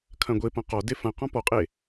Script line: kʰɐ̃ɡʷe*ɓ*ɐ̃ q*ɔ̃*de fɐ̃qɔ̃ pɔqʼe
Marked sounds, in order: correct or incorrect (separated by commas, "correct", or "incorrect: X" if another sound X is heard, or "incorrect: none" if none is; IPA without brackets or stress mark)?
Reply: incorrect: p, incorrect: ɔ